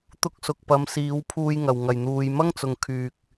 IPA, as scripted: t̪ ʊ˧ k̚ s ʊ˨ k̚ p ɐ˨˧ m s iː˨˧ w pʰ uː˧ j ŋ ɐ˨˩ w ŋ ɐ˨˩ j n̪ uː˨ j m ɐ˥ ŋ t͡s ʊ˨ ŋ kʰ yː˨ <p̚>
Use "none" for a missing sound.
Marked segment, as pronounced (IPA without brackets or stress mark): k̚